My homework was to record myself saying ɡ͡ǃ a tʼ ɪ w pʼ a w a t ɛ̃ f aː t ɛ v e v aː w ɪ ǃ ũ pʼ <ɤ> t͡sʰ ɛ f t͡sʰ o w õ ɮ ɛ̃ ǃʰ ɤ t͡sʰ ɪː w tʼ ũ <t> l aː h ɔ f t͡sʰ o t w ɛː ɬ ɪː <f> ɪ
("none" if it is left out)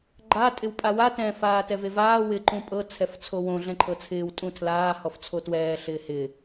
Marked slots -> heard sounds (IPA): ɤ, tʰ, h

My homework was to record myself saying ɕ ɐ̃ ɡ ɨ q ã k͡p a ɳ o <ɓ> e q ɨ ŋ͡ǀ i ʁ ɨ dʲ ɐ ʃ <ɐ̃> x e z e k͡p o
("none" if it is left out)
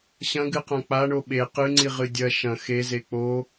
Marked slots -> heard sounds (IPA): ɓ, ɐ̃

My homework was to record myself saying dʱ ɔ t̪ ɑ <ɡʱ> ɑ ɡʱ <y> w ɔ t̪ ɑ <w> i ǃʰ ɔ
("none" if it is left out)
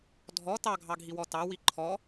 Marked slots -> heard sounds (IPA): ɡʱ, i, w

